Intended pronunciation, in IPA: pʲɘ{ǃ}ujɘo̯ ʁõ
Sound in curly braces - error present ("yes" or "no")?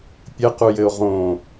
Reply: yes